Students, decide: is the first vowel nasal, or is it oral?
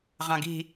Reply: nasal